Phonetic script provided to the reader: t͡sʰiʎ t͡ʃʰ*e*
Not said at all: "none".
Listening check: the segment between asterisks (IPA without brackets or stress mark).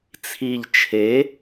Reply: e